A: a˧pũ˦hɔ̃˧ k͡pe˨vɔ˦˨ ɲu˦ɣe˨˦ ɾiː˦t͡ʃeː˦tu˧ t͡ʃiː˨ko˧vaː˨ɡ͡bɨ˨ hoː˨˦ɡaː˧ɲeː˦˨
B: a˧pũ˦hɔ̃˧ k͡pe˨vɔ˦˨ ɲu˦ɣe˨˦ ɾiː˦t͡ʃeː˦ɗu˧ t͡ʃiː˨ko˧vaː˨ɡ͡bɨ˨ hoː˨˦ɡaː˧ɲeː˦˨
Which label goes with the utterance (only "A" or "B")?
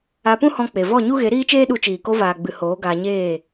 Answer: B